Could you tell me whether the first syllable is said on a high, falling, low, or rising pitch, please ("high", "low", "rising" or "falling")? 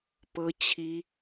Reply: high